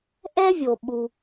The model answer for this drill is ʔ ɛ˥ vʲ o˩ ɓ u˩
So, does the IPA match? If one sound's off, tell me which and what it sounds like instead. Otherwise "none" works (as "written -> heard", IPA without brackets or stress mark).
none